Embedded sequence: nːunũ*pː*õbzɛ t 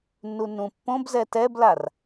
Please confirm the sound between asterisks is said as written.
yes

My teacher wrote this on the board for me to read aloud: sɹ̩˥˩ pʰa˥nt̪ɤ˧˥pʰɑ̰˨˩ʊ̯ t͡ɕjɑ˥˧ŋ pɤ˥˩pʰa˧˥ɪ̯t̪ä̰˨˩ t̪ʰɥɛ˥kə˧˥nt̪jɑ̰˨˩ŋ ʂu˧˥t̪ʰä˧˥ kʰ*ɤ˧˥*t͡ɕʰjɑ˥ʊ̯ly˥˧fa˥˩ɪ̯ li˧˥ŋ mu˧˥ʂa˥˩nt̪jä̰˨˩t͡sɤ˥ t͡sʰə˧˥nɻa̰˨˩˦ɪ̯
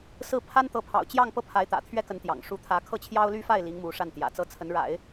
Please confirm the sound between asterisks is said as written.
no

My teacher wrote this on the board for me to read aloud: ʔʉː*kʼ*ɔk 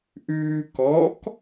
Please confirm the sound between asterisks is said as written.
no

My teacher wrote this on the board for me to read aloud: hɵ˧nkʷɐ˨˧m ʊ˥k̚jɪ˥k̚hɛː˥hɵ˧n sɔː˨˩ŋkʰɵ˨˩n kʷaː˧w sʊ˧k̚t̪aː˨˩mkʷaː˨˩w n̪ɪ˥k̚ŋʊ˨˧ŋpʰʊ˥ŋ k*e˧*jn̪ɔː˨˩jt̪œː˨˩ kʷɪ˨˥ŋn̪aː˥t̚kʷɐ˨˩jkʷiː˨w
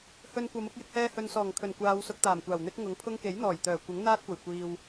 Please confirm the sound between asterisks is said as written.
no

